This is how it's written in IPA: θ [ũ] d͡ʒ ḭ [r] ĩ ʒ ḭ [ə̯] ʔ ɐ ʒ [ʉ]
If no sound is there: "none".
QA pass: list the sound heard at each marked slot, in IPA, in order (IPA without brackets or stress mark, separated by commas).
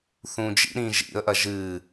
ũ, ɾ, ə̯, ɨ